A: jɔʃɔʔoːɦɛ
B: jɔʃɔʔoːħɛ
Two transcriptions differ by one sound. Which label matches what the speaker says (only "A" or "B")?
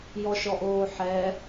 B